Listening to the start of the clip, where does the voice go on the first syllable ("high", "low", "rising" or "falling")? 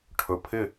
low